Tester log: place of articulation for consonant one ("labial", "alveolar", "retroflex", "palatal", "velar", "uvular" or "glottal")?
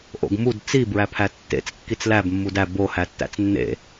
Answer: glottal